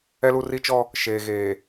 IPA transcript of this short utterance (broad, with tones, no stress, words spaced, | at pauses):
ɛ˦lu˦ri˦t͡ʃɔ˦ | ʃeː˨ɣeː˨